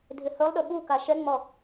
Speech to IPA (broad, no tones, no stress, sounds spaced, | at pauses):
dʱ ɪ h ɵ lˠ ɗ ɵ ɓ u k a ʃ ɛ ŋ͡m ɔ